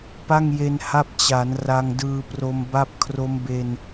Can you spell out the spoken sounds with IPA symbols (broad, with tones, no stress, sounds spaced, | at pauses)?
p a˥˩ ŋ j e˧ n h a˥˩ p̚ t͡ɕ a˩˦ n r a˧ ŋ d ɯː˧ p r o˧ m b a˥˩ p̚ kʰ r o˦˥ m b e˧ n